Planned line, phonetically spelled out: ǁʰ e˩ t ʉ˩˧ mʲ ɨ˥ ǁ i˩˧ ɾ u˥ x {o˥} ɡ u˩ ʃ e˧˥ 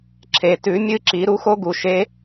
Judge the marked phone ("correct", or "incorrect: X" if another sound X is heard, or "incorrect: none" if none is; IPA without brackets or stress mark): correct